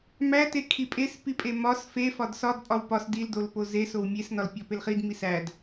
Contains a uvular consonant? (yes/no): yes